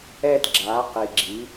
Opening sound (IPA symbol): ɛ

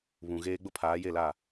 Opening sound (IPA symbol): β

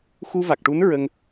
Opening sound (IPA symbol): x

